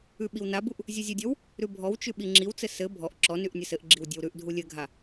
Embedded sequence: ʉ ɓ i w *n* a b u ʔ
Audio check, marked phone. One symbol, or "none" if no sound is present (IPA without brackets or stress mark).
n